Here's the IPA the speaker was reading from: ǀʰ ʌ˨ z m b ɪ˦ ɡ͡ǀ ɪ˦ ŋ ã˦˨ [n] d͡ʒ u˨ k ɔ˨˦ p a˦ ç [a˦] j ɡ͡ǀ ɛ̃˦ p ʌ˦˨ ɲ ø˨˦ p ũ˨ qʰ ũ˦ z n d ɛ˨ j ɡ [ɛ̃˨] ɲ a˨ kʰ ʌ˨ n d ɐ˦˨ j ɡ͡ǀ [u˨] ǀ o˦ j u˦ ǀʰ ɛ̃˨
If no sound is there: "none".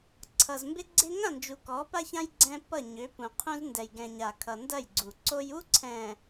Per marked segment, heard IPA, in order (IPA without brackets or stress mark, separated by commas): n, ã˦, ɛ̃˨, u˨